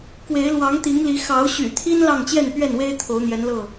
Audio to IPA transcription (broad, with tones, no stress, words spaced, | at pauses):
kwe˨˦ɪ̯lwɑ˨˦ŋt̪i˨˦ŋli˨˦ xɑ˨˦ʊ̯ɕy̰˨˩t̪ʰi˦n lɑ˥˨ŋt͡ɕjɛ˥˨npɥɛ˥˨nwe˦ɪ̯ t̪ʰo˨˦ʊ̯n̪jɛ˨˦nlɤ˥˨